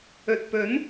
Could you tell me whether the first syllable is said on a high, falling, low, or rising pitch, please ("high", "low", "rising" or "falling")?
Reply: low